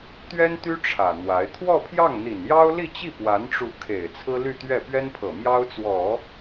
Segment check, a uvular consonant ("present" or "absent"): absent